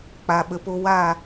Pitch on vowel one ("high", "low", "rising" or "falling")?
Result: low